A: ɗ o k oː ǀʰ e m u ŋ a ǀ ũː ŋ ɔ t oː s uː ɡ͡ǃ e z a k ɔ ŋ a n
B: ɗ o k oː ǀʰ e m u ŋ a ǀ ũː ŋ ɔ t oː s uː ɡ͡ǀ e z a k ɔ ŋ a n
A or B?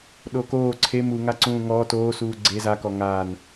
B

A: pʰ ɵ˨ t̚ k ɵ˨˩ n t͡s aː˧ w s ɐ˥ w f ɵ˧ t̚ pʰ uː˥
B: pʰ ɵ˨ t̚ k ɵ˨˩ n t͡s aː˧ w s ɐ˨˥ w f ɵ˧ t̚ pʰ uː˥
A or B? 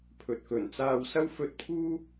A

